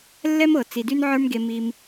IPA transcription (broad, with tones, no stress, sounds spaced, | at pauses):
lː ɛ˦ m ɤ˨ t͡s i˨ d y˦ n ʕ ə˞˦ m ɡ e˧ m i˧ m